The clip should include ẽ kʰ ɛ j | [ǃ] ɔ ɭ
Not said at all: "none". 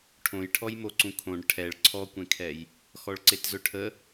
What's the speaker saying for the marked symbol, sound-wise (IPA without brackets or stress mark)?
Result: x